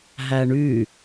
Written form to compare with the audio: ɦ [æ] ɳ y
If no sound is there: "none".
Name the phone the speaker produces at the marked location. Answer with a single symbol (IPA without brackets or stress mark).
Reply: æ